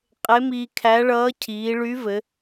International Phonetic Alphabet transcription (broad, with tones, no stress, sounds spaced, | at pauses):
qʼ e˧˥ m iː˧ kʰ æ˧˥ ɭ ʌː˧˥ cʰ iː˩˧ ɭ y˧˥ v ɘ˩˧